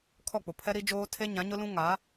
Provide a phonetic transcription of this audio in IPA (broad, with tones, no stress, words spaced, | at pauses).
kʰɔ˦˨k͡pʊ˨ pʰɛ˦ɾi˦d͡ʒoː˦ tʰe˦ɲã˨˦ɲʊ˦lũ˦ ŋa˨˦